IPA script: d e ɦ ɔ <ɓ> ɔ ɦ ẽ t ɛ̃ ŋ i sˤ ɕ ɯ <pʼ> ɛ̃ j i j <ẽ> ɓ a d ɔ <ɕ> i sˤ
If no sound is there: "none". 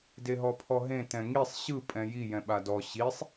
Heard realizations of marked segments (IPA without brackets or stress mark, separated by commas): pʰ, pʼ, ɛ̃, ɕ